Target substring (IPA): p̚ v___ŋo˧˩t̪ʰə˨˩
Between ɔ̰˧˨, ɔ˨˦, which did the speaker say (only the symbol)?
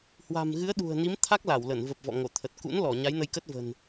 ɔ̰˧˨